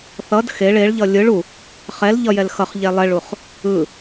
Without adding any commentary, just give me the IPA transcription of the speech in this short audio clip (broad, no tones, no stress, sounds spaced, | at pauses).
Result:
θ ʌ d x e ɭ e ɭ ʎ ʌ lʲ ɯ ɭ u | χ ɛ l ʎ ʌ j ɛ l x ʌ χ ʎ ɛ lˠ ɛ ɭ u χ | ɯ